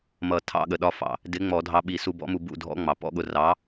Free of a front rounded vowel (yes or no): yes